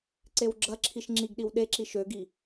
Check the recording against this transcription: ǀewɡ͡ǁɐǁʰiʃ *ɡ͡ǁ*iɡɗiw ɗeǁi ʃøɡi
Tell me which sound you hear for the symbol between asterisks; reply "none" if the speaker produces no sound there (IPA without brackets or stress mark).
ŋ͡ǁ